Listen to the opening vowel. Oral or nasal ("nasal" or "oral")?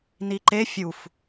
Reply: oral